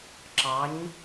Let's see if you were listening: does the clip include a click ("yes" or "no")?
yes